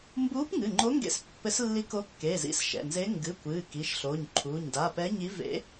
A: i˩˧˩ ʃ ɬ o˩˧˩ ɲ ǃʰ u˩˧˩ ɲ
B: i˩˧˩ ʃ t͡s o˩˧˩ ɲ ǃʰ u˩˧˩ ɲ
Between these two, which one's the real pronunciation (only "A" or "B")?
A